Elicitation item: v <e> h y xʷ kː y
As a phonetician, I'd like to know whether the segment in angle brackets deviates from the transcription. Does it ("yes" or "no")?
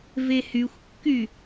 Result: no